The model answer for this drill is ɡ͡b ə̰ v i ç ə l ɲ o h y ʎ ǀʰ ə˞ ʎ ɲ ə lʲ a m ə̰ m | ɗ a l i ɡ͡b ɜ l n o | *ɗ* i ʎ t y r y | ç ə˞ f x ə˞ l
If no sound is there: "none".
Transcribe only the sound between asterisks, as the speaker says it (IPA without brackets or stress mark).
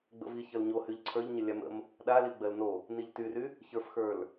n